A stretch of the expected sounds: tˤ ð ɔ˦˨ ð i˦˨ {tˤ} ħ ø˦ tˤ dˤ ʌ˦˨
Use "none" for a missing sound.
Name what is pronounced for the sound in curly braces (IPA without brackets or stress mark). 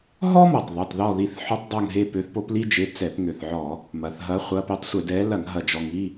θ